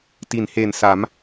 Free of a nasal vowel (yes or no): yes